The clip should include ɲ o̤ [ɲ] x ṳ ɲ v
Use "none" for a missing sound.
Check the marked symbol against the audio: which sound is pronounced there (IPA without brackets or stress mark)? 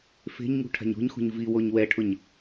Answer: ɲ